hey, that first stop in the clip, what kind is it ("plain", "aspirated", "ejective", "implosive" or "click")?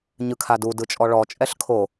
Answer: aspirated